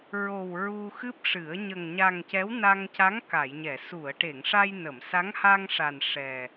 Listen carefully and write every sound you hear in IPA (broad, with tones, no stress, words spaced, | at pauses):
ɹo˨˩w ɹu˧xɨ˦˥p̚ʂɨ˨˩˦ə̯ ɲə˨˩ŋɲa˨˩ŋ cɛ˧˥wna˧ŋca˧˥ŋ ka˨˩˨jɲɛ˨˩˨ su˨˩˨ə̯ʈe˨˩˨ŋ ʂa˧jnə˨˩˨msa˧˥ŋ ha˧ŋʂa˨˩n ʂɛ˨˩